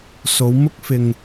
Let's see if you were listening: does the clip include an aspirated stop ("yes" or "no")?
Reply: no